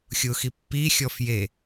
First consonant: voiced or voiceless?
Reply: voiceless